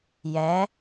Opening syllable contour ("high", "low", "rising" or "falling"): rising